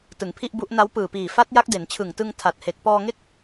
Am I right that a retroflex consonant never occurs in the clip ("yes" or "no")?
yes